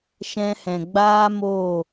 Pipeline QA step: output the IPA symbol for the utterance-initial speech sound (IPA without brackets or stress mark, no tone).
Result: ʃ